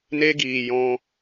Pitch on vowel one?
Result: high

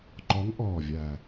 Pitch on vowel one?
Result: rising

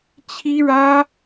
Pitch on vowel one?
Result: high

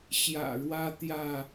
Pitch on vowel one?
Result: low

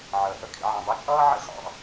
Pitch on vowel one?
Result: low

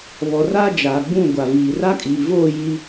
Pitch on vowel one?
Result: low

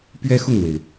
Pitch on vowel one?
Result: high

